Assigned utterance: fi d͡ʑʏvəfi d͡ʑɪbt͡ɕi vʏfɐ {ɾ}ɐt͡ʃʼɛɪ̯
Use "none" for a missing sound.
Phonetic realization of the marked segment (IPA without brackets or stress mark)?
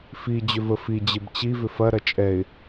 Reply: ɾ